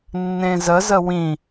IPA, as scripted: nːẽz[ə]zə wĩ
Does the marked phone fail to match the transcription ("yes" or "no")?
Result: no